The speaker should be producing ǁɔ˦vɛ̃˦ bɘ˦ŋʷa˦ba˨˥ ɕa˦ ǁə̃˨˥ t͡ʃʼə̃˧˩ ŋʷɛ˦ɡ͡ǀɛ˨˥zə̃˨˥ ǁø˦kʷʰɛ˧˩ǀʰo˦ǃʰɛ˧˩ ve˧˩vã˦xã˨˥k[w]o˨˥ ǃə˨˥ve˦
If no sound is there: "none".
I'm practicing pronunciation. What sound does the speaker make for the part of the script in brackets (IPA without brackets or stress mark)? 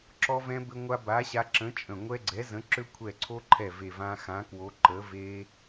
w